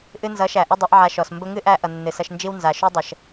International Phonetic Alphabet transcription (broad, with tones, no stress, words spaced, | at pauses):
ʔɨ˧nzʌ˨˦ʃæ˨ ʔə˦dˤʊ˨˦ʔʕa˧ʃɔ˨s mbə˧ŋɨ˦ʔæ˧ ʔʌ˨nːɨ˨sʌ˧ʃnd͡ʒi˦w nza˨ ʃu˦ dˤə˨ʃ